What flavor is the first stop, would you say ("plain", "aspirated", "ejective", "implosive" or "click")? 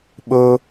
implosive